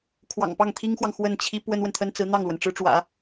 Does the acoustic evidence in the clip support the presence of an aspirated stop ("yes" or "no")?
yes